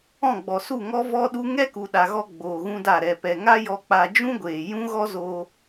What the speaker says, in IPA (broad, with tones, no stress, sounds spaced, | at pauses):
ɔ̃˦˨ ɡ͡b ɔ˨ s u˦˨ ŋ ɔ˦ v ɔ˦ ɗ u˦ ŋ ɛ˦ k u˨ ɗ a˨ ɣ ɔ˧ ɡ͡b oː˨ ɣ ũ˦ d a˦˨ ɾ ɛ˨ p ɛ˨ ŋ a˦ j ɔ˧ k͡p a˧ d͡ʒ ũ˦ ɡʷ eː˨ j ũ˦ ɣ ɔ˦ z oː˧